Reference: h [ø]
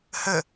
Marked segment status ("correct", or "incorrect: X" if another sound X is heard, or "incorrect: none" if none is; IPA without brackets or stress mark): incorrect: ə